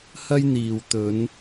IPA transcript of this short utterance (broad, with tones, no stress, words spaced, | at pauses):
hɐ˥jn̪iː˨w t̪ɵ˨˧n